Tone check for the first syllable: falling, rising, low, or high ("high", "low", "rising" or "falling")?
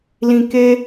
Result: high